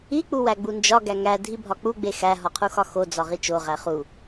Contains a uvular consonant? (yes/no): yes